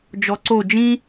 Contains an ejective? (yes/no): no